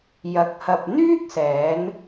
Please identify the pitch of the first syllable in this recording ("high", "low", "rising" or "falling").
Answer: rising